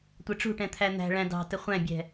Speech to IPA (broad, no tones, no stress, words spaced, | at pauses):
tʷɛʈ͡ʂṳʈɛ̃ t̪ʰæn̪æ̤ɭæ̃ dɑ̤tə χʷæ̃bʲɛ̤